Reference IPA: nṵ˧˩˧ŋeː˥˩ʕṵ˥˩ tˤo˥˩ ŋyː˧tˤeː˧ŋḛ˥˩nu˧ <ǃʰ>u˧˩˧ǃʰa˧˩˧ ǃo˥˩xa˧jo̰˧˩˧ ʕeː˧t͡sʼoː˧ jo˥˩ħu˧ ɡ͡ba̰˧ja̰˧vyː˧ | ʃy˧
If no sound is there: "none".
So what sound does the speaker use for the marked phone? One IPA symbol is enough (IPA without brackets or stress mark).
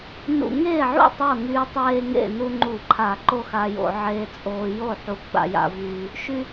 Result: ŋ͡ǃ